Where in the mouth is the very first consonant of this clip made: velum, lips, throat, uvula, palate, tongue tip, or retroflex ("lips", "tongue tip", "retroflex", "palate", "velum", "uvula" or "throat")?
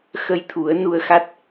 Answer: velum